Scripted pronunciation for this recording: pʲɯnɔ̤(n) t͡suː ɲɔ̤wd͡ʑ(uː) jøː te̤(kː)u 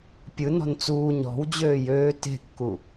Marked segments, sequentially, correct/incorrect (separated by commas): correct, incorrect, correct